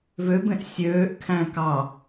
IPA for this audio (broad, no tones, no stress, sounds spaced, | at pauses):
v ø b ẽ ʔ sʲ øː ʔ kʰ æ̃ k ɑ